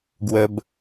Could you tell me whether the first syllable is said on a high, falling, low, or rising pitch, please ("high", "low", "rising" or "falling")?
high